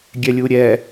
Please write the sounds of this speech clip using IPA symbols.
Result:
ɡʲ ɛ lʲ u ɾʲ ɛ

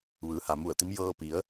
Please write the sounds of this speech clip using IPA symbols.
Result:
ʋ ɯː˩˧ h a˩ m u˧˩ ə̯ t̪ i˧˥ m j ɤː˧ p i˩˧ ə̯

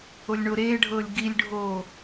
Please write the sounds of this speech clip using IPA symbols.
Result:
o lʲ ɳ o ɾ eː ɖʱ ɤː lʲ ɡ i lʲ ɖʱ oː

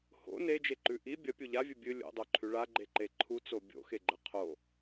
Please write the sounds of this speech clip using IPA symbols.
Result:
h o̰ n e d͡ʒ e ǃ ʉ ʔ i bʲ ɐ pʲ u ʎ a vʲ ɨ bʲ ɨ lʲ o̰ dˤ o ǃʰ ʉ ɭ a ɡ͡ǃ e ǃ e ǃʰ u t͡s o bʲ o̰ x e ɡ͡ǃ ɐ qʰ o

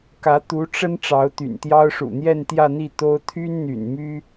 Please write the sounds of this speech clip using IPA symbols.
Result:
k ä˧˥ t̪ u˧˥ ʈ͡ʂ ə˥ n ʈ͡ʂ ɑ˧˥ ʊ̯ t̪ y̰˨˩ n t̪ j ɑ˥ ʊ̯ ʂ ṵ˨˩ n̪ j ɛ˥˧ n t̪ j ä˥˧ n̪ i˥˩ t̪ o˥ ʊ̯ t̪ʰ y˥ n n̪ y̰˨˩ n m y˥

